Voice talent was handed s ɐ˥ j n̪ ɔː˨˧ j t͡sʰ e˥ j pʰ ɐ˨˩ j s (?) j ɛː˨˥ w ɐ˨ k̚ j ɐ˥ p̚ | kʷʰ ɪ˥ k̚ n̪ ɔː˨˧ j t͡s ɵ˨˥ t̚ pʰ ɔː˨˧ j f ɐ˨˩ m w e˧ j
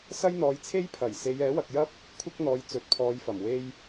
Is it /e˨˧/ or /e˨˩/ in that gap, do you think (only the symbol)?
e˨˧